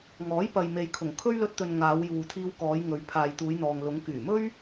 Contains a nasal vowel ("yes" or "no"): no